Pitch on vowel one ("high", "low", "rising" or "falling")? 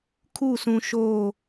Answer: falling